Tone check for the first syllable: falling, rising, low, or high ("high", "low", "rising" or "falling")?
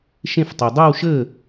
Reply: falling